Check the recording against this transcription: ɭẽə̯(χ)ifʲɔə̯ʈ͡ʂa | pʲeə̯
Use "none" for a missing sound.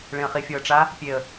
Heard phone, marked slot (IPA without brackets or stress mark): χ